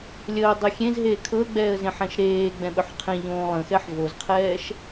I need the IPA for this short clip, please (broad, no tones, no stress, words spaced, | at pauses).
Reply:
lʲəːdˤi xʲẽz ɦeːkʰɤə̯ɡ͡bɛːə̯ zẽħɛ̃ʃɾeːɡ͡bɛ̃ ɓɵħqʰẽʎõː lˠə̃xɛħ vozqʰɛːʃ